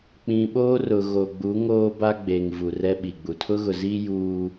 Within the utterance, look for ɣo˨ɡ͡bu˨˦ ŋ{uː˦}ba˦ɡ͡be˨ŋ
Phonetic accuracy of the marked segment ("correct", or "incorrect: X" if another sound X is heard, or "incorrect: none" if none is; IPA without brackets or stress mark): incorrect: oː˦